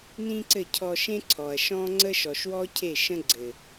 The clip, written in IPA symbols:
nĩ˦ǀɘ˦˨cʰɔ˧ʃẽ˦ ǀʰɔ˨ɐ̯ʃɔ̃˦ŋ͡ǀə˦ ʃɔ˨ʃwɔ˦cʰe˦˨ ʃə̃˦ɡ͡ǀɘ˨

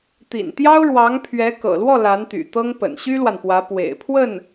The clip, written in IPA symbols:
t̪ḭ˨˩nt̪jɑ˥ʊ̯ ɻwɑ˧˥ŋpʰɥɛ˧˥ kɤ̰˨˩lwɔ˥˩ la˧˥nt̪y̰˨˩t̪ɤ˥ŋ pə̰˨˩nɕy˥lwa˨npwä˧˥ pwḛ˨˩ɪ̯pʰwə˥˩n

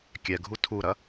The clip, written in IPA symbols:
kʲɛɡʱu tʰuɾɐ

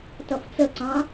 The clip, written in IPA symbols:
tʌft͡səǀɑ̃

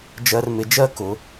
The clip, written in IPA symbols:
d͡ʒɜ˧rmɪ˩˧d͡ʒɜ˥ kʊ˩˧

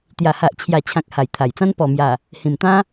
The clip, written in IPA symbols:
t̪ja˨˩ha˨ʔt͡ɕʰja˨˩t͡ɕʰã˨k̚ ha˨˩jt̪ʰa˨˩jt͡sã˦n pɔ˨˩mja˨˩ | hĩ˨˩mt̪ã˦

